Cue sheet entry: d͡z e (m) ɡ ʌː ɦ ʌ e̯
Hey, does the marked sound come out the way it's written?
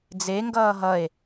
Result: no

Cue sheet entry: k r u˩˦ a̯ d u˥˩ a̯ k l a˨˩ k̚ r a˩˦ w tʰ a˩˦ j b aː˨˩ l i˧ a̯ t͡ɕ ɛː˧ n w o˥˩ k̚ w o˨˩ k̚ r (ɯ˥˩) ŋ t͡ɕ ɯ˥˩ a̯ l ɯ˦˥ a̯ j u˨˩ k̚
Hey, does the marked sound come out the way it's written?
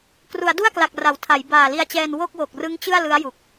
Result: no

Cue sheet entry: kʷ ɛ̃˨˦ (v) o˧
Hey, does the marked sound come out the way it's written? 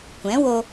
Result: no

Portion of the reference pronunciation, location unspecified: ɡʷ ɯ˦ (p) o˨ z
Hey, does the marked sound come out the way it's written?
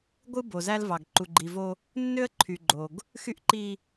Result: no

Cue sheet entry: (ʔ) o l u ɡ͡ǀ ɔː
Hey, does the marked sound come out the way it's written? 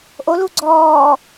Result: yes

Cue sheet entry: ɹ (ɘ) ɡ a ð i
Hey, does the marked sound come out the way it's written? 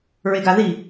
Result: no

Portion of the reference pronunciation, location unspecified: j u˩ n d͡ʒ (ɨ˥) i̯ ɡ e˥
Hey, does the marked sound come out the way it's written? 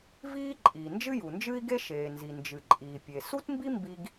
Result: yes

